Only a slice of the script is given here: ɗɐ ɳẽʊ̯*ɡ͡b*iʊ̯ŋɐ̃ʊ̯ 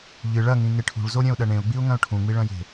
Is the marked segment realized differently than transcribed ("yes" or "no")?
no